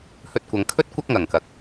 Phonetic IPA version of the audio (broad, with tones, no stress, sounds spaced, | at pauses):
h ɵ˧ t̚ kʷ ɐ˨ ŋ kʰ ɵ˥ t̚ kʷ ɐ˥ k̚ ŋ ɐ˨˩ ŋ k ɐ˨ k̚